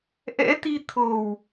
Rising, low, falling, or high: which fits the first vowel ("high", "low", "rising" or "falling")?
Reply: rising